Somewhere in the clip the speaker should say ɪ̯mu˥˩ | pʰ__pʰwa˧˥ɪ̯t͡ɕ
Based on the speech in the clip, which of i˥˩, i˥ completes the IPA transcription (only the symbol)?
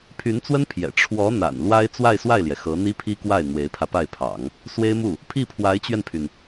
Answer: i˥˩